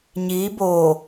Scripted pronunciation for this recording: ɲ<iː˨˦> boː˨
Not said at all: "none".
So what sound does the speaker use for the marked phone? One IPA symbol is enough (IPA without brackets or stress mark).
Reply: iː˨˦